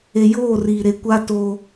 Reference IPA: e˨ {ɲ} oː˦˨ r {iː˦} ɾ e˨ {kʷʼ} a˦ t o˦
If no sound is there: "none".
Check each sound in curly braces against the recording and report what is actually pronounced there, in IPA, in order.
j, iː˨, kʷ

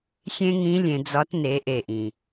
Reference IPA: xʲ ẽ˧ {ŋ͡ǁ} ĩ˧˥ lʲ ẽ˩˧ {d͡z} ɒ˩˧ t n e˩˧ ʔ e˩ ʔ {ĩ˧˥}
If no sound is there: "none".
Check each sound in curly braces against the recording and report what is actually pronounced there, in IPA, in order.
ŋ, d͡z, ĩ˩

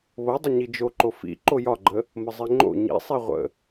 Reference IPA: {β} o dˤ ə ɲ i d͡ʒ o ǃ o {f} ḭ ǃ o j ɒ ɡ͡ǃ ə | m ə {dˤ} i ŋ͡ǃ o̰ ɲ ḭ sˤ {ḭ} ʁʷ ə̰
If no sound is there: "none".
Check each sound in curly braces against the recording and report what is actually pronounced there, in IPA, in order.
β, f, zˤ, i

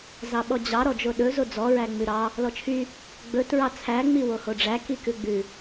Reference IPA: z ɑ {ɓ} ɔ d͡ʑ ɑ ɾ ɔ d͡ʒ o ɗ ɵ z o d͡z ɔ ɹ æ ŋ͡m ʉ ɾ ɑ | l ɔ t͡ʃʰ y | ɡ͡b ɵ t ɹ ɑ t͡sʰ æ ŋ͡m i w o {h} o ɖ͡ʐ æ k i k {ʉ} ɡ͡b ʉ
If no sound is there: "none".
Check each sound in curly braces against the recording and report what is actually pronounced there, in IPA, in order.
ɓ, h, ʉ

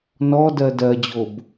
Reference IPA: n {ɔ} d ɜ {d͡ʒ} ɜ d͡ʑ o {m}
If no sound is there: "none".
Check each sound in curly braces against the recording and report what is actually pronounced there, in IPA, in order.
ɔ, d, b

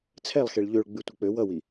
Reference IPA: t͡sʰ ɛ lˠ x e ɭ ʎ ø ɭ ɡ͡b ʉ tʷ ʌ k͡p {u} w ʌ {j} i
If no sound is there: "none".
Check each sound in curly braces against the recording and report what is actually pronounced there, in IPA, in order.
ø, w

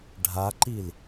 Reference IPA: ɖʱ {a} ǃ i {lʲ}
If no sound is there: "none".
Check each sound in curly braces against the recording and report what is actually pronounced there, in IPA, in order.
a, l

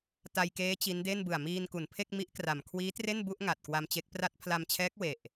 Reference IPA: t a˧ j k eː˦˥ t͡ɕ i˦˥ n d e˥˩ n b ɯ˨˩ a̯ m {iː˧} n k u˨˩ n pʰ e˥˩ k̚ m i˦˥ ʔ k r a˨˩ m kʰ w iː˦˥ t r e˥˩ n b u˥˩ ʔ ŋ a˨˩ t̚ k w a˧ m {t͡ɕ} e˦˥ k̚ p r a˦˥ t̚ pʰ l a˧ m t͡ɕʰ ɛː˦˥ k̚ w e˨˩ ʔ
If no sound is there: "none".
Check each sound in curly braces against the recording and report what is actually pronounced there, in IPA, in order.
iː˧, t͡ɕ

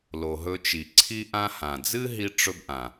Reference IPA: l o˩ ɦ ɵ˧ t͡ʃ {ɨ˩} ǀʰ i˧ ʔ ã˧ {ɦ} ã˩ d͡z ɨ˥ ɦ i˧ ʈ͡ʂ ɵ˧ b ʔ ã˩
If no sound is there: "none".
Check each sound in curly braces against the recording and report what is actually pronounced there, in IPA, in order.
i˩, h

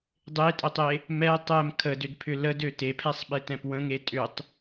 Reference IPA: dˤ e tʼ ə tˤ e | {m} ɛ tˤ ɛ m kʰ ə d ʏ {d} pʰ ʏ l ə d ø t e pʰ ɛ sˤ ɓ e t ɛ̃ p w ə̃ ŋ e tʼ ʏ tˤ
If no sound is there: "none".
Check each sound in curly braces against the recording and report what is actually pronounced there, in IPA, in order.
m, d

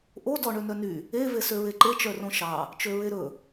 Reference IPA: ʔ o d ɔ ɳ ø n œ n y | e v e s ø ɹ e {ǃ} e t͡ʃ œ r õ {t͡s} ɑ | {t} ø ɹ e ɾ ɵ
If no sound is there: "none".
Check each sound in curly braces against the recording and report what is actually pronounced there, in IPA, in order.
ǃ, ʃ, t͡ʃ

